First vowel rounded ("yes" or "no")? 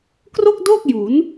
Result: yes